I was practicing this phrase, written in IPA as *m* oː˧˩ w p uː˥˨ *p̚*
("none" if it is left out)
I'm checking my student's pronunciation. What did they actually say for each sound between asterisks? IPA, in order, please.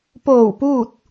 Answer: p, t̚

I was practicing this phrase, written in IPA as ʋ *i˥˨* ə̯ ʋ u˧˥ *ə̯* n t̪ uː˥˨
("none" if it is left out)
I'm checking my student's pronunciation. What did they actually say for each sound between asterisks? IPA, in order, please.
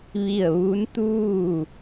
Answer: i˥˨, none

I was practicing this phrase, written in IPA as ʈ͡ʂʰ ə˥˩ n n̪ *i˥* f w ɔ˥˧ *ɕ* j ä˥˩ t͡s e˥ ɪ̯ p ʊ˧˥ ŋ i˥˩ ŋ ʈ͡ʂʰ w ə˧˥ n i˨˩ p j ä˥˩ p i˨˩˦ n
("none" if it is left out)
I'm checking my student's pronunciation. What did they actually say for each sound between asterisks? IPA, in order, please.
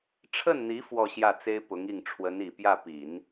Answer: i˧˥, ɕ

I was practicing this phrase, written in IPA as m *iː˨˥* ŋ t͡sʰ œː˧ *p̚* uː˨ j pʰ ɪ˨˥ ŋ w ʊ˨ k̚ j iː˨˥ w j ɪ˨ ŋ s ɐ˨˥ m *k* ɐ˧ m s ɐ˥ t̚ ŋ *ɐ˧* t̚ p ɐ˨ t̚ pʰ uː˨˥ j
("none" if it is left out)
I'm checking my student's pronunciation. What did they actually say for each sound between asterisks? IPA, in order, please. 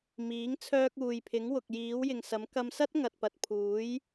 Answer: iː˨˥, k̚, k, ɐ˨

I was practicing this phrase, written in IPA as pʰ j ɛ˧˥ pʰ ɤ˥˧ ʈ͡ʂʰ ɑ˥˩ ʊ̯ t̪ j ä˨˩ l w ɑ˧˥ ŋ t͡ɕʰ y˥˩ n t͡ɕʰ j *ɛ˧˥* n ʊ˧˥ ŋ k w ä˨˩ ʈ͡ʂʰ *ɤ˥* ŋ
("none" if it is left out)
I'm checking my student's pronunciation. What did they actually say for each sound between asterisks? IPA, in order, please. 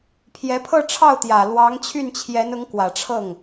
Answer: ɛ˧˥, ɤ˥˩

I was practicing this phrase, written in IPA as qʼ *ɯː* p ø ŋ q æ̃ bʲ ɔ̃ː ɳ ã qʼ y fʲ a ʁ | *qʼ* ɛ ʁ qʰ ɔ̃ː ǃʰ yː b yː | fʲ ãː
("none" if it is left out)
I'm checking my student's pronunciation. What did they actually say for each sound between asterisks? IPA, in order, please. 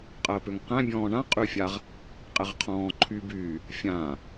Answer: əː, qʼ

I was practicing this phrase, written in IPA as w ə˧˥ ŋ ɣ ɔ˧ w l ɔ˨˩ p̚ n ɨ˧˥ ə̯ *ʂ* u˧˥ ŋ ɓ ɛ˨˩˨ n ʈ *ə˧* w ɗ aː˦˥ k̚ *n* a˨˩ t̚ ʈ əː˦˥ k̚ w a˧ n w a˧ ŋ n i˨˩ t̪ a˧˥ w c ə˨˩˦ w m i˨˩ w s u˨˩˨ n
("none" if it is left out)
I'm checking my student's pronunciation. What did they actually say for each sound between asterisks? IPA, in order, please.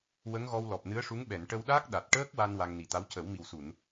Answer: ʂ, ə˧, ɗ

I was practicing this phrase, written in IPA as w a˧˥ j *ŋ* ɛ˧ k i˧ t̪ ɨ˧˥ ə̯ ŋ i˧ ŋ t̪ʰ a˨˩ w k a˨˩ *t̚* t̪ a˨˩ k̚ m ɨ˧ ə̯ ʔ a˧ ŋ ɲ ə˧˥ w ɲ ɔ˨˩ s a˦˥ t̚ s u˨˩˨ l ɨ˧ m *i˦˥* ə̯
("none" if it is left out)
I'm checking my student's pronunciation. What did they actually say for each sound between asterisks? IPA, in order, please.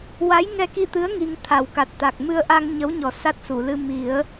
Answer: ŋ, t̚, i˨˩˦

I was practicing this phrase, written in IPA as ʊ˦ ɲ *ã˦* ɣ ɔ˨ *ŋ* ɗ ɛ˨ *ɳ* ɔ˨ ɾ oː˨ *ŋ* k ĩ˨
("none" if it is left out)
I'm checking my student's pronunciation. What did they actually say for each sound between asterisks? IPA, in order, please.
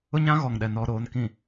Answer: ã˦, ŋ, n, n

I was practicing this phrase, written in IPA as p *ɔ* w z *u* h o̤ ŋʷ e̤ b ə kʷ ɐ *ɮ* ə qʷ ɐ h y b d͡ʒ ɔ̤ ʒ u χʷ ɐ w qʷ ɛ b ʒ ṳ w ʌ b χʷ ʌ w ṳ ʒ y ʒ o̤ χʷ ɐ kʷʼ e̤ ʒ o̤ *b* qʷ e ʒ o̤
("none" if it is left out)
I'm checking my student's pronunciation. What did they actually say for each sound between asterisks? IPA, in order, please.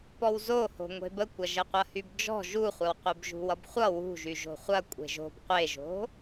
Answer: ɔ, o, ʒ, b

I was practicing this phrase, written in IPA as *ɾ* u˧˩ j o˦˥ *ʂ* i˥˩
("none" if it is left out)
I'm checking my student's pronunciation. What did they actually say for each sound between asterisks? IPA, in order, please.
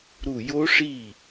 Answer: ɾ, ʂ

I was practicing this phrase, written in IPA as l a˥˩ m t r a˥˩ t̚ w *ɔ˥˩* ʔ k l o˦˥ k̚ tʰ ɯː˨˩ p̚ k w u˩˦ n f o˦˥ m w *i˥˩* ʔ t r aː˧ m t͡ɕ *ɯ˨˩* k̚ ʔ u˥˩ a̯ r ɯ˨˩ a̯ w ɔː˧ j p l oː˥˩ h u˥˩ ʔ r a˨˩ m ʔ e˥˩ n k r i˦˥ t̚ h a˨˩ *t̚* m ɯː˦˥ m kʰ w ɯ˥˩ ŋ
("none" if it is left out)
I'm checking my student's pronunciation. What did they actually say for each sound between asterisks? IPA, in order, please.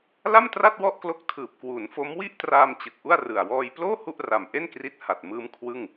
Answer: ɔ˥˩, i˥˩, ɯ˨˩, t̚

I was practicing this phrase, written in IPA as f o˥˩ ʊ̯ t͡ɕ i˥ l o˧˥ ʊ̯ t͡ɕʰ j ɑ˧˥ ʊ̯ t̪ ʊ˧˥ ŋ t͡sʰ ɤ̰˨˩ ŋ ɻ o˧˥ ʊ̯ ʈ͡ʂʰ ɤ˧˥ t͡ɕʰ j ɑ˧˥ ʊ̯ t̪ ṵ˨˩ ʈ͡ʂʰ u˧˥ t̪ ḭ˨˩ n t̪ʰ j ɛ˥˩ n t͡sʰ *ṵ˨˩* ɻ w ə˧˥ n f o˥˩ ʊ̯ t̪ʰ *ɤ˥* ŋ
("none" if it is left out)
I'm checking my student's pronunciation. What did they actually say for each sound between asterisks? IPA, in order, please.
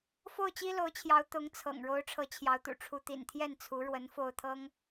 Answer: u˧˥, ɤ˥

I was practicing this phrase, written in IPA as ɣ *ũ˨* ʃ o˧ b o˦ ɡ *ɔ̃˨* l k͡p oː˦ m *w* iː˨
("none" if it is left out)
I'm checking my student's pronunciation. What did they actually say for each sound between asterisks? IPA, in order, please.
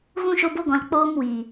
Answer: ũ˦, ɔ̃˨, w

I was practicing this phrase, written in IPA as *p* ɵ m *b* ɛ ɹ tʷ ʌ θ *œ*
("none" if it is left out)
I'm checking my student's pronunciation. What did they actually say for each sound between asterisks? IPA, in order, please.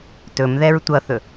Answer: t, ð, ɵ

